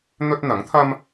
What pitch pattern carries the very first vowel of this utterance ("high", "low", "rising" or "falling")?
high